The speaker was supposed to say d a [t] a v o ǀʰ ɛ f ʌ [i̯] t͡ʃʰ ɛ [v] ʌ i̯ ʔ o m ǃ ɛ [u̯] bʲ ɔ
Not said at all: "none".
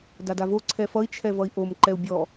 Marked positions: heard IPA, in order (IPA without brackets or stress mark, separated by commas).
d, i̯, v, u̯